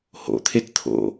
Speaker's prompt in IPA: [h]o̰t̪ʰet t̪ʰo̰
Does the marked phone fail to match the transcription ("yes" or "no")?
no